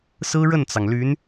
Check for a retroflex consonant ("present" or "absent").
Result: present